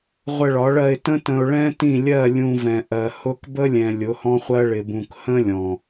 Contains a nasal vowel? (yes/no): yes